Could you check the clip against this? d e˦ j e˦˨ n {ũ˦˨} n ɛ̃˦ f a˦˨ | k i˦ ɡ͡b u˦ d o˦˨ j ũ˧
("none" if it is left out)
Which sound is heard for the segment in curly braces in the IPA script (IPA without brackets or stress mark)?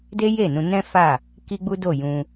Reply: ũ˧